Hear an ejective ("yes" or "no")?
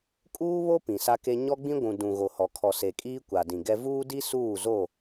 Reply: yes